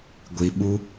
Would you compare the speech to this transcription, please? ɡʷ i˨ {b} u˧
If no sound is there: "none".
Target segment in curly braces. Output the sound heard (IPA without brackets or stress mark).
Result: ɓ